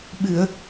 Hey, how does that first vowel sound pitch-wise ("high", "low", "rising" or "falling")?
low